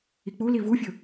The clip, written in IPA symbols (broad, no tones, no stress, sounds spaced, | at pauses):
i k͡p u l i v u fʲ ɵ